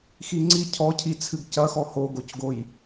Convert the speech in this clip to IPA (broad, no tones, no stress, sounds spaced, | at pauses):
x i ŋ͡ǀ i cʰ ɔ cʰ i t͡sʰ ɨ ɡ c ɐ x ɔ h o ɡ o c ɡ o j